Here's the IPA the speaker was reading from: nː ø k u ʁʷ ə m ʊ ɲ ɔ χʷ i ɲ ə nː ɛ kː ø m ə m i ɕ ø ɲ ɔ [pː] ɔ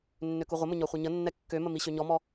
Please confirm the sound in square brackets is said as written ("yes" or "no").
no